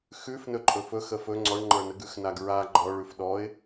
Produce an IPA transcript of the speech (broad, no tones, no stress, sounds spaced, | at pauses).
x ʉ f n ɵ ǃʼ ɵ f ɵ x ə f ɵ ŋ͡ǀ ɔ ɳ ŋ͡ǃ ə˞ n ə ɡ ʉ x n a ɡ ɹ a ɡ͡ǃ ɔ ɭ ʉ f ɗ ɔ ɪ̯